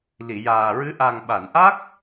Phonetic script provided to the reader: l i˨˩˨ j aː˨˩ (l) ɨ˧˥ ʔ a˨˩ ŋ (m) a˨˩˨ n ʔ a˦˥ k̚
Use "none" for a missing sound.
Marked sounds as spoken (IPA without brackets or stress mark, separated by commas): ɹ, ɓ